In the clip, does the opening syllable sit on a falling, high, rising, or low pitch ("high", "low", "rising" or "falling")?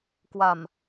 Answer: low